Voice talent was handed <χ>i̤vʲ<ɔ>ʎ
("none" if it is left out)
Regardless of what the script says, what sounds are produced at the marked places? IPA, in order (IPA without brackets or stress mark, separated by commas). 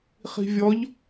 χ, ɔ